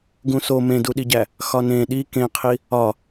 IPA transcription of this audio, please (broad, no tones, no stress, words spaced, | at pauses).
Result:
ɡũso mẽduɗiɟæ | xɒnẽ ɗi kẽqʰi | ɒ